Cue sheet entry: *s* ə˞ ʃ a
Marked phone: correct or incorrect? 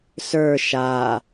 correct